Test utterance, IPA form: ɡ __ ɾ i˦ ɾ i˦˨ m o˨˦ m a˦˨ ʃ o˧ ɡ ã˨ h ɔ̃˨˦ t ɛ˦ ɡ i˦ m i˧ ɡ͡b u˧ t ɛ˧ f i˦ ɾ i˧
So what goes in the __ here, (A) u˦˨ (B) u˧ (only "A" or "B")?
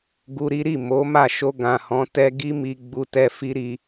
B